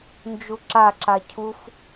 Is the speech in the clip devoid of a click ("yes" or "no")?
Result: no